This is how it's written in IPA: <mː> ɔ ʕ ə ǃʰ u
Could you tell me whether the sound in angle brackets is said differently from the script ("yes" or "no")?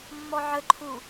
no